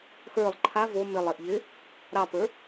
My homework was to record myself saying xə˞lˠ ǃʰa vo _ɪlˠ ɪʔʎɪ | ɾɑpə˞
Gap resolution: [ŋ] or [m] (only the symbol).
m